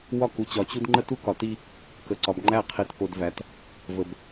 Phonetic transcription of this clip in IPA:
w ɒ˦ k u˨ t͡ɕ ɒ˨ t͡ɕ u˦ d ŋ͡ǃ ə˦ t u˦ k ɒ˨ t i˦ | k ə˨ ǀ ɒ˨ b ŋ͡ǃ æ˦˨ qʰ i˨ t p o˨ d v æ˨ t | v ə˨ b

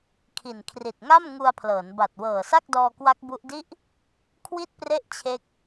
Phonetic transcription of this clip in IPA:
kʰ i˨˩ n kʰ r i˨˩ t̚ ŋ a˥˩ m ŋ u˧ a̯ pʰ l ɤː˩˦ n b a˨˩ t̚ w ɤː˨˩ s a˥˩ k̚ d ɔː˧ k w a˦˥ k̚ b u˦˥ ʔ d i˥˩ ʔ | kʰ w i˥˩ t̚ p r e˥˩ ʔ t͡ɕʰ e˦˥ k̚

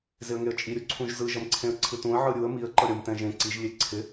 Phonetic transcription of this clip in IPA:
z ɪ ə̯ ŋ e ə̯ t͡ʃʼ i ɾʲ u ǀʰ ũ ʒ z ɯ ʒ ʌ m ǀʰ ẽ ə̯ ǀʰ ɯ t ũ ə̯ ʕ ɯ ɾʲ u ə̯ m i ə̯ ǃ ʌ ɾʲ ʌ m t ɛ̃ ʒ ẽ ǀ i ʒ lʲ e ǀʰ ɪ

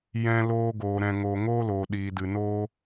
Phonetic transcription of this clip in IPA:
j ɛ̃˧ l oː˧ ɡ oː˨ ɾ ɛ̃˨ ŋ oː˨ ŋ oː˦ l oː˨ ɗ iː˨ d ɨ˨ n oː˦

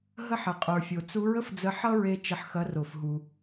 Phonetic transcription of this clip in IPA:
ɦ ə˧ ħ ə˩ qʼ ə˞˩ fʲ o˩ t͡s u˧˥ ɹ ə˥ f d͡z ə˧ ħ ʌ˥ ɹ e˧ t͡ʃ ə˧ ħ x ɐ˧˥ r o˩ f ɦ u˩

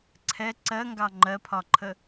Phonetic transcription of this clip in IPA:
ǀʰ ɛ ǀ ɜ ŋ ɡ ɑ ŋ͡ǃ ɜ pʰ ɒ ǃʰ ə

